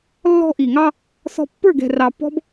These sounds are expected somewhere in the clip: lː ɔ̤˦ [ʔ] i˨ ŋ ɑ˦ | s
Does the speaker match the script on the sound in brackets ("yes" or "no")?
yes